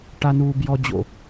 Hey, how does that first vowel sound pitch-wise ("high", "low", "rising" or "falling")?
low